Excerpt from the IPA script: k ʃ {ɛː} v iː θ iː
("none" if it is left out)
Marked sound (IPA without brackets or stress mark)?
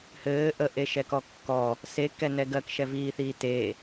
ɛ